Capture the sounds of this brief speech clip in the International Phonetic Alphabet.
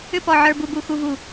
ʏ˦pɔ˨ ʕə˞˨bu˨bu˨ xu˨vu˨

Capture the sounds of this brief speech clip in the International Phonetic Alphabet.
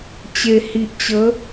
t͡ɕe˨˩hi˨ʔt͡ɕə˨˦

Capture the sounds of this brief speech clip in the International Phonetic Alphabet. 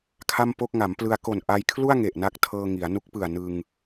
kʰa˥˩mpo˥˩k̚ ŋa˩˦mplɯ˧a̯ ko˨˩nʔa˧jkʰlu˥˩a̯ ŋe˨˩ʔna˦˥k̚ tʰɤː˧ŋi˩˦a̯ nu˦˥k̚pɯ˨˩a̯ nɯ˧ŋ

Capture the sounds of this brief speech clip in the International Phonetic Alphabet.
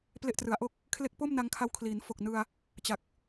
ple˥˩ʔtrɯ˩˦a̯ ʔo˦˥k̚ | kʰle˦˥k̚po˥˩m na˧ŋkʰa˧wkʰliː˩˦n fo˨˩k̚ nɯ˧a̯ | t͡ɕa˨˩k̚

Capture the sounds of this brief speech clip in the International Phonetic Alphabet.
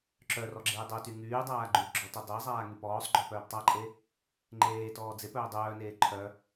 ǁœrɔ ɡ͡ǁeːdˤœty ŋyːdˤaː ɡ͡ǃyɡ͡ǁɔ todˤezˤaː ŋypɔːsˤɡ͡ǃœ pœːptˤaǃʼe | ŋ͡ǃeːtɔː d͡zep œːdˤœːneː ǃʰœ

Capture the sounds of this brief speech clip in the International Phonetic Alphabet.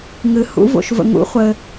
ŋɨ˨ hṵ˨˥vo̰˨ʃvə̰˨ŋṵ˨˥ χʷɘ˨

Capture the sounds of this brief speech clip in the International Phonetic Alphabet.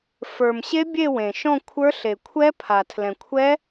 fə˞˨mɕe˦˥ bʲe˥˧wẽ˨ʃɔ̃˥˧kʷʰə˞˦˥ ɬe˨ kʷʰɛ˦˥pʰa˨ tʰlɛ̃˨kʷʰɛ˦˥

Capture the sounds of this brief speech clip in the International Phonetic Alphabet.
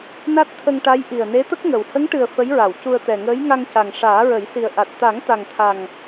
na˦˥t̚t̪ʰə˧ŋ ʈa˧˥j ʔi˨˩ə̯ne˧˥t̪ə˦˥k̚ŋə˨˩w hə˧˥ŋʈɨ˨˩ə̯ fə˧˥jɹa˨˩˨w cu˧ə̯t̪ɛ˨˩ŋəː˧˥j ŋa˧ŋca˨˩ŋ ʂaː˨˩˦ɹə˨˩˦jsi˨˩ə̯ʔa˨˩t̚ t̪a˨˩˦ŋt̪a˨˩ŋt̪ʰa˨˩ŋ

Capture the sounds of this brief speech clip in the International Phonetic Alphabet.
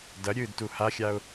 dɐɾʲɨːdtu haxʲaʊ̯

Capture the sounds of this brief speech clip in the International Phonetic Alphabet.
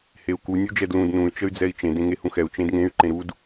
heu̯ku nʲud͡ʒɛdlũd nũy̯ t͡ʃəy̯d͡zɛi̯t͡ʃẽ dẽŋehũxɛu̯ t͡ʃẽdŋẽy̯ ǃẽɾud

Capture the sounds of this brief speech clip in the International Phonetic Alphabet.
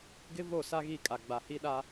ɡɪ˦vo˦˨ sa˦ɣi˦˨kʼa˨ ɡ͡ba˨hi˦ɗa˦

